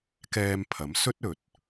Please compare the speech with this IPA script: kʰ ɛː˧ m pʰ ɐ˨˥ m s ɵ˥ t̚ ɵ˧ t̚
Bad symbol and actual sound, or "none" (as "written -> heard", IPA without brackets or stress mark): kʰ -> k